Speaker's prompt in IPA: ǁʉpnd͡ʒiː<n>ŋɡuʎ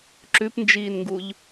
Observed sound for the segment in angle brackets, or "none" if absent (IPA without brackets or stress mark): n